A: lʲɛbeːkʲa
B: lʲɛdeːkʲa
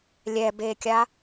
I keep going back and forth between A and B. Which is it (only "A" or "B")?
A